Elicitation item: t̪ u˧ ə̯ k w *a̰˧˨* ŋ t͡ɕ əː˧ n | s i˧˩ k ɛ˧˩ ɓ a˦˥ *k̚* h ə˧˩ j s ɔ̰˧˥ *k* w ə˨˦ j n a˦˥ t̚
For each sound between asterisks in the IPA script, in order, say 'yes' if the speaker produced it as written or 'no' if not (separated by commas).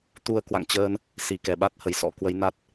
yes, no, yes